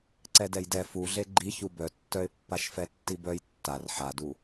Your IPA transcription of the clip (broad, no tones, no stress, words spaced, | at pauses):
ǀɛdɛjdɛ fuɮe ɡ͡ǃi çubœtːœɪ̯ pːaʃfɛtːibœj tːar ħadu